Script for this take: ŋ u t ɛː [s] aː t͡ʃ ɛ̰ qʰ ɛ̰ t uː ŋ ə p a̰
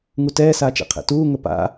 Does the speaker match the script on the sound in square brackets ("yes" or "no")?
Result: yes